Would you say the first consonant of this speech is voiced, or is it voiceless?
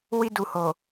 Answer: voiced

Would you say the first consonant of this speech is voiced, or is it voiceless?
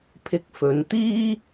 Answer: voiceless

